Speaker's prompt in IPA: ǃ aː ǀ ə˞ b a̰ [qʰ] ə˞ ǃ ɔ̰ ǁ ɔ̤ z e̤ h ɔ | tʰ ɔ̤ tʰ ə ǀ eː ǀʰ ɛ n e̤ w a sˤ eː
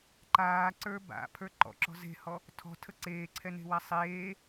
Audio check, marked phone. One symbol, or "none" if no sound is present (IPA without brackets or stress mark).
pʰ